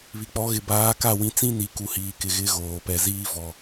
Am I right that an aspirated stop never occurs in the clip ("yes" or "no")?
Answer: yes